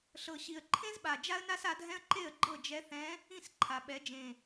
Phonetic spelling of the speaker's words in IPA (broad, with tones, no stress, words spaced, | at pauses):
ɬɤ˨˩ɕi˨˩ə̯ ǃʰẽ˥zɓa˨˩ d͡ʒa˥ə̯na˥sa˧˥dʱɛ̃˥ə̯ ǃe˥˩ə̯ɡ͡ǃɤ˥˩d͡ʒɛ˧˥θɛ̃˧˥ | ĩ˥˩sǃʰa˩˧ ɓɛ˩˧ d͡ʒẽ˨˩